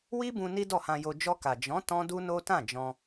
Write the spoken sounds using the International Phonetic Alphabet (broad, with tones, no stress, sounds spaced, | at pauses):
w i˦ b ũ˧ n i˦ d ɔ˦˨ h ã˧ j o˧ d͡ʒ ɔ˧ k a˨ d͡ʒ ɔ̃˨˦ t ɔ̃˦ d u˦ n o˦ t ã˦˨ d͡ʒ ɔ̃˧